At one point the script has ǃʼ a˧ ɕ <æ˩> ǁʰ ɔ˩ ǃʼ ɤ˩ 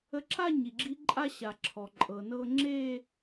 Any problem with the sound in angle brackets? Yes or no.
yes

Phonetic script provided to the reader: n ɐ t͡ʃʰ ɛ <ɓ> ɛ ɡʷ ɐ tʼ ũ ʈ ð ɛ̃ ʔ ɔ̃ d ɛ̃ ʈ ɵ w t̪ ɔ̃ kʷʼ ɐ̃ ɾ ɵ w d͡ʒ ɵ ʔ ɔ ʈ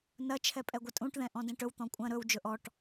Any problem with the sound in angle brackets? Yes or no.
yes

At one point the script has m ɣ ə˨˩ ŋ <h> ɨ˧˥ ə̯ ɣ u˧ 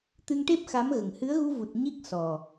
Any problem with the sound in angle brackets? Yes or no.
no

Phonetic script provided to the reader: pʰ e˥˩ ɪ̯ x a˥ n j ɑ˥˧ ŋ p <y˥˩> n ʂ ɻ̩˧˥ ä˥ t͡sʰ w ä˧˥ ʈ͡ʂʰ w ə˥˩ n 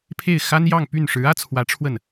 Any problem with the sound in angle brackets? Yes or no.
no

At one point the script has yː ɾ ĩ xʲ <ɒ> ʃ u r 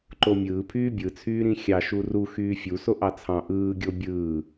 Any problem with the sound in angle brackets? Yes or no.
yes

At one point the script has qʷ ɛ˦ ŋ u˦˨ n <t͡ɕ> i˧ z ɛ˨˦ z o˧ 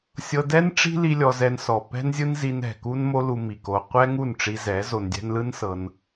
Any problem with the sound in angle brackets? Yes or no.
yes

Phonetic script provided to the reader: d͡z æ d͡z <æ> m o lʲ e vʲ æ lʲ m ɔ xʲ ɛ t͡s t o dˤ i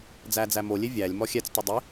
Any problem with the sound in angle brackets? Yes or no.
no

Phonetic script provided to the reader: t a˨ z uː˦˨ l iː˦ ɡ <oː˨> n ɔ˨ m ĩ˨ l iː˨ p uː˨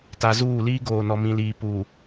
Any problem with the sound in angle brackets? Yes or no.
no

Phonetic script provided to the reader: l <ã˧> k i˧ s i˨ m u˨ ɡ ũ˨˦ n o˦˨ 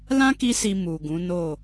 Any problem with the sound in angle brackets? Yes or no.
yes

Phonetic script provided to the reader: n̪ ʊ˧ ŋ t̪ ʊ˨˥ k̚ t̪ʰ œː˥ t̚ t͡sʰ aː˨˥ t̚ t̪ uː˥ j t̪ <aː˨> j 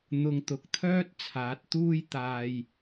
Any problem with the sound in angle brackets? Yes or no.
yes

